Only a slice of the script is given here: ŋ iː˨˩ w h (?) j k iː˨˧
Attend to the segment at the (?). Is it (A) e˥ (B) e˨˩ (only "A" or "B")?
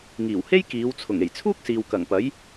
A